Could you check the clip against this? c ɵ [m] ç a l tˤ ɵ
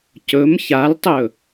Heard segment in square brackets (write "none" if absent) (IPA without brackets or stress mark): m